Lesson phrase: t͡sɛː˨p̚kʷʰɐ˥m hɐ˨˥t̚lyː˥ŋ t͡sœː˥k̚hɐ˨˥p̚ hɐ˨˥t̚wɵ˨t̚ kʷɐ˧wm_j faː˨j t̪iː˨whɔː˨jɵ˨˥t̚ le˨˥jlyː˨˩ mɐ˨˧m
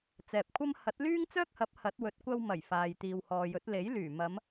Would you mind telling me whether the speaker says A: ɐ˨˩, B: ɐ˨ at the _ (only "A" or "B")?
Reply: A